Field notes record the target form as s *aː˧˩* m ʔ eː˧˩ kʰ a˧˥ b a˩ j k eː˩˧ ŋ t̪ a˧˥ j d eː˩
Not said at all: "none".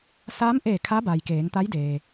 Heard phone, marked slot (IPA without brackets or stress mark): aː˧˥